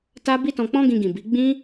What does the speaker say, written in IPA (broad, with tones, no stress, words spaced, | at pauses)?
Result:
ta˦ bi˦tɔ̃˧k͡pɔ̃˦ ɡĩ˧ɡĩ˨ bi˨˦ ɡ͡bĩ˦